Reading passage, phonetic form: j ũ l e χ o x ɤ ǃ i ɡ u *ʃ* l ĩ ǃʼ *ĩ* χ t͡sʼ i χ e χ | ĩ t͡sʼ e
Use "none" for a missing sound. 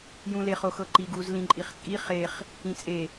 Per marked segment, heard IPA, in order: z, i

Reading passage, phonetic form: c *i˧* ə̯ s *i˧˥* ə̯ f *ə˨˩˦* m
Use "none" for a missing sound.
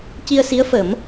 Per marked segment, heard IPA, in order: i˧, i˧˥, ə˨˩˦

